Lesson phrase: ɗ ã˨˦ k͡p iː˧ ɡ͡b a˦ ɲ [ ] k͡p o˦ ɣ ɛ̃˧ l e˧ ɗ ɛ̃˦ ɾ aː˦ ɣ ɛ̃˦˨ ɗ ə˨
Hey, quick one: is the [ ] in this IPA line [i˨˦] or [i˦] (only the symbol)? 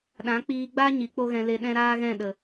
i˨˦